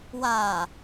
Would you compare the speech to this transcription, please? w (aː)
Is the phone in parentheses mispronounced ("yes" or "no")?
no